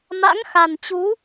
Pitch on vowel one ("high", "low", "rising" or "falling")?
rising